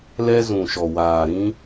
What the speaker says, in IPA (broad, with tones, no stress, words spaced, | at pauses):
lɛ˧zũ˨ʃɔ˨waː˨ ɾĩ˧